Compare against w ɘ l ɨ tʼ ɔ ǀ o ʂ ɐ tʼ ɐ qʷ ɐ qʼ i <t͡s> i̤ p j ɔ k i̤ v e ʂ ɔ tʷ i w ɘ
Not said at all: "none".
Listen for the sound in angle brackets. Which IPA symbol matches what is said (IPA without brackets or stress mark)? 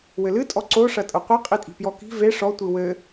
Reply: tʼ